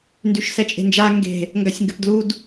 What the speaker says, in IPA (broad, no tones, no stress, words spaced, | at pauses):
ndyʃsɛt͡ʃʼe̤nd͡ʒa ŋɡe̤ | ŋɡasʲŋɡɘpdlud